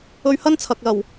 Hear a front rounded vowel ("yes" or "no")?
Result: no